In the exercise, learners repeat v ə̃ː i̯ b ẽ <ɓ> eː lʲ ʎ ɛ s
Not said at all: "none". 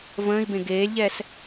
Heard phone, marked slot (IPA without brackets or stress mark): ɡ